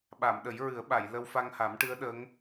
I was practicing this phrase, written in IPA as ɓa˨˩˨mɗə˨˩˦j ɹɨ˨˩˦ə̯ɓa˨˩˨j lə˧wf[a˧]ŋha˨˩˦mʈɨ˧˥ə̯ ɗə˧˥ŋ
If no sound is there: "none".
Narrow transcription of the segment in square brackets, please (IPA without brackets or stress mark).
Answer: a˧